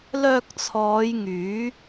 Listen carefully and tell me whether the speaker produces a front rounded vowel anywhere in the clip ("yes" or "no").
yes